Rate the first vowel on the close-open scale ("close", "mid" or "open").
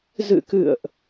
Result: close